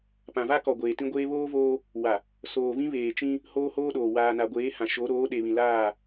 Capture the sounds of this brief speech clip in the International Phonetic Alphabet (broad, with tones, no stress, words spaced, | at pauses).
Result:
pã˨va˦kɔ˨ ɡʷeː˨tĩ˦ɡʷeː˦ βoː˦voː˦ | wa˨ | soː˨vĩ˦βeː˨t͡ʃĩ˦ | hoː˦hoː˦ɗoː˨ waː˨na˨ɡʷeː˨˦hã˨ ʃo˨˦ ɾoː˨˦ɗe˨βĩ˨ laː˦˨